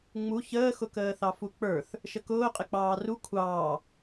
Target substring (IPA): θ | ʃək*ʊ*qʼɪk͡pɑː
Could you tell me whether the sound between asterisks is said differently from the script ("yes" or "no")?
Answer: yes